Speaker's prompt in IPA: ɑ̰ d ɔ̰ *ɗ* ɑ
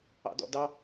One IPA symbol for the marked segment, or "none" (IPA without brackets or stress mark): d